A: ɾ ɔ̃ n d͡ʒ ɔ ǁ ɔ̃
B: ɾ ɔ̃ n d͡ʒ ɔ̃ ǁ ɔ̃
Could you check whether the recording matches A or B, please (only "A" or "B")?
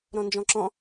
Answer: B